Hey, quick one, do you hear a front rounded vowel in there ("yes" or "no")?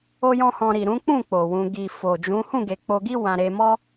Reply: no